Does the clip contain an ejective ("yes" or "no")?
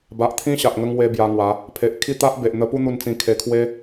no